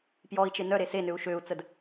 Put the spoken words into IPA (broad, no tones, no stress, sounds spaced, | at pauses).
p j ɔ i̯ t͡ʃ e n œ ɾ e s e n ø u̯ ʃ ø u̯ t͡s ə d